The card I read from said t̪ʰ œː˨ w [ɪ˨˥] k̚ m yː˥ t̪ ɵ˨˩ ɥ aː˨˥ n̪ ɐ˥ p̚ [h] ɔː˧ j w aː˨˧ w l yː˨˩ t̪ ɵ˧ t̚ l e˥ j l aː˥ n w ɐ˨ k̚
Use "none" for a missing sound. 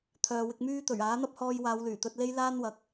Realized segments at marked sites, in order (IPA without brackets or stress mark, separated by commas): ɪ˧, h